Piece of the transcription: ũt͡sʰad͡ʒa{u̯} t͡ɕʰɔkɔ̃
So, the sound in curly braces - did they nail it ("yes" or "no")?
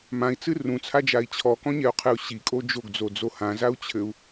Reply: no